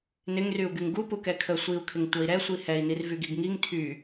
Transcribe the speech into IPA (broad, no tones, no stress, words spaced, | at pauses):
nɪŋryu̯ɡyŋ ɡupu kɛkʰə sʷiu̯kʰɪŋ tʷʌi̯ɾɛsʷi hɛi̯nirvy ɡiɡŋiŋ tʰy